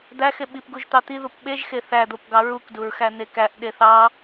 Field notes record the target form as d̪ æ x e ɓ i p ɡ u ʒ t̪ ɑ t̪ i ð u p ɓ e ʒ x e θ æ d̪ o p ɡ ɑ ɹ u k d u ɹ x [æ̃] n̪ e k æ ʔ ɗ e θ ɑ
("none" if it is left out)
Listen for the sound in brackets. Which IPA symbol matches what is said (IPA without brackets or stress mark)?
æ